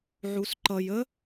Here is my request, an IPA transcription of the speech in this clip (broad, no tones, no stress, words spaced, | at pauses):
ʕusǃʌj ə